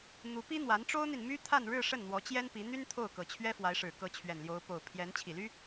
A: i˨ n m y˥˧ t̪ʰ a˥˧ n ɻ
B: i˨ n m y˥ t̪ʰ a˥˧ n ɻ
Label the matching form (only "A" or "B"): B